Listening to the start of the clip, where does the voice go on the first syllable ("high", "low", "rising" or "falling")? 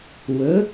rising